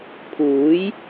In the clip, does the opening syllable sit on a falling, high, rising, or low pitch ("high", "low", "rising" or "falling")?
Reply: rising